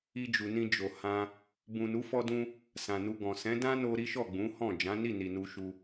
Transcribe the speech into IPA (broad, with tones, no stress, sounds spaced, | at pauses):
i˧ d͡ʒ u˨ n ĩ˧ d͡ʒ o˨ h ã˧ | b ũ˨ n u˨˦ f ɔ˧ d ũ˧ | s ã˨ n u˧ ɡ ɔ̃˨ s ɛ̃˨˦ d ã˦ n o˧ ɾ i˦ ʃ ɔ˦˨ ɡ͡b ũ˨˦ h ɔ̃˦˨ d͡ʒ ã˨˦ n i˦˨ n i˨ n u˧ ʃ u˧